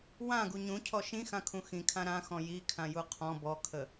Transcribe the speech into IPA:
w ã ɡ u ɲ ũ cʰ ɔ ʃ ĩ x ã kʰ ũ x ĩ kʰ ã ɾ ã x ɔ̃ j i kʰ ã j u qʰ ɔ̃ b ɔ kʰ ə

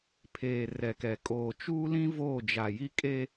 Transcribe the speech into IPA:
pʰ eː˨ r ɛ˨ k ɛ˨ kʼ oː˨ t͡ʃ uː˦ l ĩ˦ v oː˦˨ d͡ʒ a˨ j i˦ kʼ e˦

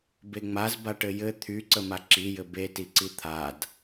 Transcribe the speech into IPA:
b e ŋ͡m a z b a ʈ ɘ j ɘ t̪ʰ y ǀ ə m a ǁ i j ɘ b e t i ǀ i t̪ʰ a d

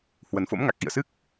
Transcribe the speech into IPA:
h w ə˨˩ n f o̰˧˥ m ŋ a˨˩ k̚ ʔ ḭ˧˨ ə̯ s ɨ˦˥ k̚

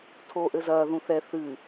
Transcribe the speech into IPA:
tʰ oː ʔ ɘ z ɐː ð ũ θ ɛ θ ɨ

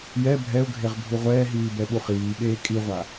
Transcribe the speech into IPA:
j ɛ bʱ ɛ ʊ̯ ɡʱ e ʁ bʱ u ʁʷ ɛː ɦ iː b ɛ ɓ u χ iː ɓ eː kʼ i ʁʷ a

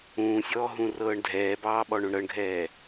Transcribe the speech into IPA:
ũː sʲ ɔː ɦ ũ r ɤː ɳ dʱ ɛː b ɑː ɓ ɔ ɳ õ ɳ ɾ ɤ ɳ ɡʱ ɛː

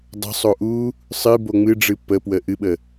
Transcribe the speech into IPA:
dˤ ə̤ sˤ o ʔ u | sˤ ɨ b o ŋ͡m ɨ ɖ͡ʐ ɨ p ə p w ə ʔ ɨ ɓ ə

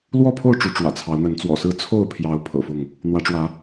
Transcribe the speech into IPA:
l w ɔ˥˨ pʰ o˥˨ ʊ̯ ʈ͡ʂ u˨˦ ʈ͡ʂ w ä̰˨˩ t͡sʰ ɑ˨˦ ʊ̯ n̪ ə˨˦ n t͡s w ɔ̰˨˩ s ɹ̩˥˨ t͡sʰ o˥˨ ʊ̯ pʰ j ɑ˨˦ ʊ̯ pʰ ɤ̰˨˩ f ʊ˥˨ ŋ | n̪ w ä˨˦ ʈ͡ʂ w ä˨˦

